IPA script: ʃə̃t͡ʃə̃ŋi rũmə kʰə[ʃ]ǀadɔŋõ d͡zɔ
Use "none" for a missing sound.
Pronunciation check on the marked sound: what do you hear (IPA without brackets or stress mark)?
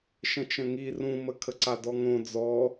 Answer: none